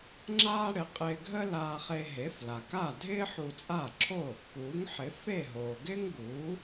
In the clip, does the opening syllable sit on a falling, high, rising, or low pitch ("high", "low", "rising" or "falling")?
high